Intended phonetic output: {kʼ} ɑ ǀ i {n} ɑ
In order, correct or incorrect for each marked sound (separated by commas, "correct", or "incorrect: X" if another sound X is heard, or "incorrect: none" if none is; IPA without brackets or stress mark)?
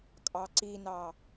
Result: correct, correct